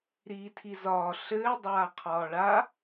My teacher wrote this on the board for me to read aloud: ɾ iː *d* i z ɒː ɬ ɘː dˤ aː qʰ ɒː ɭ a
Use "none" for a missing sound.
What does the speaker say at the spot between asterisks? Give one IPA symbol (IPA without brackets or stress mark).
tʰ